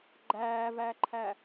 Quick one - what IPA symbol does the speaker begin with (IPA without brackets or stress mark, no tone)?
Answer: ɡ͡ǃ